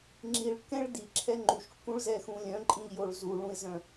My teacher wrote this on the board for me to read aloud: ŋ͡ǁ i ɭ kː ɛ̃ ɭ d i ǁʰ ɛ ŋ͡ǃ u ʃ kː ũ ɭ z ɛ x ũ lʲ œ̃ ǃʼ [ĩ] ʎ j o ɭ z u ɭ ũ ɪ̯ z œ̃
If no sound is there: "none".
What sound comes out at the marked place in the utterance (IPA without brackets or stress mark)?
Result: ĩ